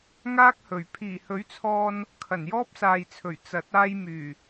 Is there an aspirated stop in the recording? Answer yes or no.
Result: yes